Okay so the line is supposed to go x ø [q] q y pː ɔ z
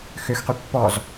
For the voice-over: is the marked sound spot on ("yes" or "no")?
no